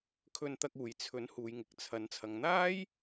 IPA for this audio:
kʰ ɵ˧ n t̪ ɐ˧ k̚ uː˨ j t͡sʰ ɵ˨˥ n h uː˨ j ŋ ɪ˨ k̚ t͡sʰ ɐ˨˥ n t͡sʰ ɐ˨ ŋ n̪ aː˥ j

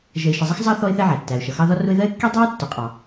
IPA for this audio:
ʒ ə˨ ɪ̯ ʃ ə˨ zˤ ʌ˦ x zˤ ɑ˦ θ ɔ˦ ɪ̯ θ ɛ˦ ʕ æ˩ tː æ˩ ʊ̯ ʃ ʌ˩ x ɑ˦ ð ɒ˦ r ʊ˦ ɪ̯ ð ɜ˥ ɪ̯ kː i˥ dˤ ɑ˥ ɪ̯ tː ʊ˨ qʼ ɑ˨

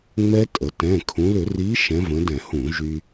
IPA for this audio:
ŋ͡m ɛ˦˥ tʼ ə˩˧ t ɛ̃˩˧˩ kʰ ũ˩˧ l ʏ˧˩˧ r i˨˥ ʃ ɛ̃˨˥ v ə̃˨˥ d ɛ̃˧˩˧ h ũ˧˩˧ ʒ y˧

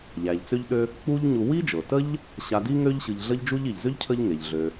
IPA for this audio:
ʎ æ˩ ʎ t͡s ø˦ ʎ ɗ ø˦ | k͡p u˦ ʎ ɲ u˨ w i˥ d͡ʒ ɤ˩ t ə˥ ʎ | ɕ a˨ d i˦ ŋ ø˦ ʎ ɕ ɯ˨ ʎ ɮ ə˦ ʎ d͡ʒ u˦ ʎ i˩ ʎ z ø˥ ʎ cʰ ə˦ ʎ ŋ e˩ ʎ ɮ ø˨

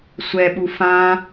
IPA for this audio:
sʷ ɛ ɓ u f ã

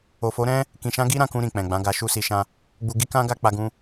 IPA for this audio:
o˨ f o˨˦ ɾ ɛ̃˦ | k ĩ˨ ʃ ã˧ ɡ i˦ ɾ ã˧ k ũ˧ ɾ ĩ˨ k͡p ɛ̃˨ ɡ͡b ã˨˦ ɡ a˧ ʃ u˦ s i˧ ʃ ã˦ | ɡ͡b u˧ ɡ i˧ k ã˧ ɡ a˦ k͡p a˧ ɡ ũ˧

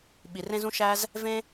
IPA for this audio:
ɓ i˩ r ẽ˥ z ũ˥ ʃ æ˥ z | v ẽ˥

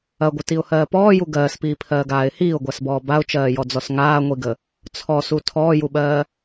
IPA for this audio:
ɐ ɡʷ ə t i ʊ̯ h ɜː p ɔː j u ɡ ɜː s p iː pʰ ɜː ɡ aː ɪ̯ h iː ʊ̯ ɡʷ a s b ɔː b a ʊ̯ t͡ʃ ɜː j ɔ d͡z ɔ s ŋ aː ŋʷ i ɡ ə | t͡sʰ ɔ s u tʰ ɔː j u ɓ ɜː

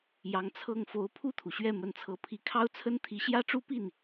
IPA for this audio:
j ɑ˧˥ ŋ t͡sʰ ɤ˥˩ ŋ f o˧˥ ʊ̯ pʰ u˥˩ t̪ʰ u˩ ɕ ɥ ɛ˥˩ m ə˧˥ n t͡sʰ ɤ˧˥ pʰ i˧˥ kʰ ɑ˥ ʊ̯ t͡sʰ ə˥ n t̪ʰ i˧˥ ɕ j ä˥ ʈ͡ʂ u˥ p i˥˩ n

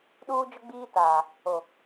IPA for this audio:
ɗ uː˦ d͡ʒ ʊ˦ ɡ͡b iː˦ t aː˨ | o˨

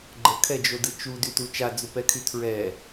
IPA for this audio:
ɡ͡ǃ ə kʰ ɛ d͡ʒ o d ɯ t͡ʃ u d y t u t͡ʃ a d͡z u p ɛ kʰ y tʰ ɹ ɛ

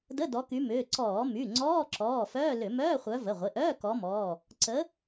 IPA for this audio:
d ə˧˥˧ d ɔ˨˦ k y˨˦ m ʏː˩˧˩ ǀ ɔː˧˩˧ m y˩˧˩ ŋ͡ǀ ɔː˧˥˧ ǁ ɔː˩˧˩ f œː˧˥˧ l ʏ˧˩˧ m œː˧˥˧ χʷ œ˨˦ v ə˩˧˩ ʁʷ ɪ˩˧˩ ʔ œː˧˥˧ k ɔ˨˦ m ɔː˩˧˩ | ǀ ə˨˦

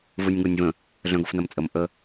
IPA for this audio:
v ɯ nʲ ŋ o nʲ v ə̃ | ɮ œ̃ ɡ o f n ɐ m t͡sʼ ə m ʔ ə

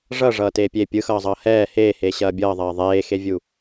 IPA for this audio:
ʐ ʌ ʐ ʌː t eː pʲ e pʲ ɯ x ʌː zˤ ʌː h ɛː h eː h eː ɕ ɐː bʲ ʌː ðˤ ɐː ðˤ eː x e vʲ u

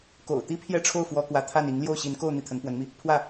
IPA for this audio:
k o̰˨˩ ʊ̯ t̪ i˥ pʰ j ɛ˥˧ ʈ͡ʂʰ o˥˩ ʊ̯ f w ɔ˥ k w ä˧˥ t̪ʰ a˥˩ n i˧˥ ŋ l j o˥˩ ʊ̯ ɕ i˧˥ n k o˥˧ ʊ̯ n̪ i˥˩ t̪ʰ ə˧˥ n p w ə˧˥ n m i˧ | pʰ w ä˥˩

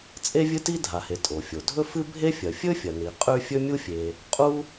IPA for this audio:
t͡sʼ e˥ vʲ ɨ˥ t i˥ dʱ a˩ h e˩ tʼ o˩ fʲ o˩ dʱ ɵ˥ f ɨ˥ bʱ e˥ fʲ ɐ˩ fʲ ɵ˥ fʲ ɐ˩ n i˩ qʼ ʉ˥ fʲ ɵ˥ mʲ u˥ fʲ e˩ | qʼ u˥

